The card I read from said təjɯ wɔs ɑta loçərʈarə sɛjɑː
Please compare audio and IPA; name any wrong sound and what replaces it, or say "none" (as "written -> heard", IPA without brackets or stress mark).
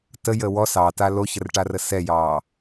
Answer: ɯ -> ə